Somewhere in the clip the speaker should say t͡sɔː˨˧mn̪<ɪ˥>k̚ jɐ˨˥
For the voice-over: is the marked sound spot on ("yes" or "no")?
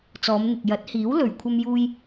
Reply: no